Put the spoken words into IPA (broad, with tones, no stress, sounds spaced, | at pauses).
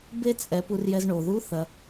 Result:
b e˥ t͡sʼ ɛ˩˧ p u˩˧ r j ɛ˧ z ɳ o˩ ð u˧˥ θ ɐ˩